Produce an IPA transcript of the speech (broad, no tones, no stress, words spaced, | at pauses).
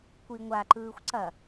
kʷiŋʷaǃɯːxʷ ǀɐ